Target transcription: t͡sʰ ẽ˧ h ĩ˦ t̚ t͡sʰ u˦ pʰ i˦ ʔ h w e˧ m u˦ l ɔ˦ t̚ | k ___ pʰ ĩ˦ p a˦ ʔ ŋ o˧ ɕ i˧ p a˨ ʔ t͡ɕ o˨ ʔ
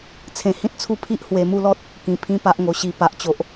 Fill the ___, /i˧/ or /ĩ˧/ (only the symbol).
ĩ˧